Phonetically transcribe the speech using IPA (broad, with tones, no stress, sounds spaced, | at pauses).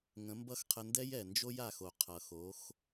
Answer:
ŋ ə̃˨˦ m b ʌ˦ x qʰ ə˧ n d ɛ˦ j ɛ˨ n d͡ʒ o˦ j a˧ x o˨ qʰ ʌ˨ x o˨˦ x